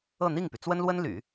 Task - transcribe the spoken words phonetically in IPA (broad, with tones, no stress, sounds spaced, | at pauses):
ɤ˥˧ n̪ i˥˩ ŋ p y˩ t͡s w ə˥ n l w ə˥ n l y̰˨˩˦